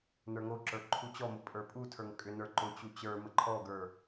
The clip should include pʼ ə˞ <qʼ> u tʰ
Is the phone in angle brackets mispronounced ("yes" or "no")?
yes